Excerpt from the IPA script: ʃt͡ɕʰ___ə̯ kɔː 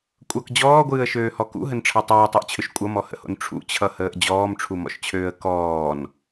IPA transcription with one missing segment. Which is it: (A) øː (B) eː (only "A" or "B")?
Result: A